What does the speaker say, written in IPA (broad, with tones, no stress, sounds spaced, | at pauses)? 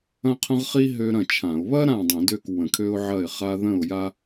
ɐ̃˥ qʰ ə̃˥ ʁ χ i˥ ɦ ø˥ ɾ ɐ̃˥˨ t͡ʃʰ ã˧˩˧ ʊ̯ β ɐ˥ ɾ ã˥˨ dˤ ə̃˧˩˧ d ø˥˨ k w ə̃˧˩˧ kʰ ø˥ ʊ̯ ʕ ɐ˥˨ ɪ̯ χ a˥ ð ə̃˥˨ ʊ̯ j a˥